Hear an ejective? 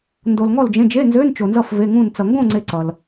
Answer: no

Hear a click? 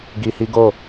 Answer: no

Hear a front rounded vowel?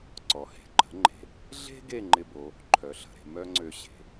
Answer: yes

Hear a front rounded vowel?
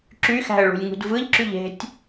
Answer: yes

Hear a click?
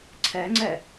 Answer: yes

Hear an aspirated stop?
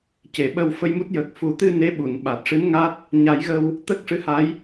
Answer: no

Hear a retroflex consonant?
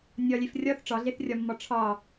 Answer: yes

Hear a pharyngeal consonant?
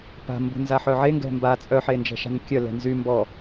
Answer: yes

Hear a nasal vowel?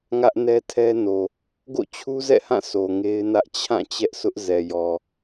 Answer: yes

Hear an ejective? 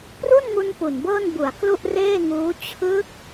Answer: no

